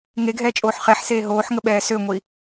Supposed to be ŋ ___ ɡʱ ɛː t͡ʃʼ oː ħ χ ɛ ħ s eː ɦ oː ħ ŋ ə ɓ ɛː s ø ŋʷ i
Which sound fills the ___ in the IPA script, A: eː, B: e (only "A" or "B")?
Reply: B